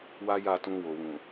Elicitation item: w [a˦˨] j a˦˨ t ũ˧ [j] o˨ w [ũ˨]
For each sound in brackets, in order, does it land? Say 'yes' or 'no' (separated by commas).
no, no, yes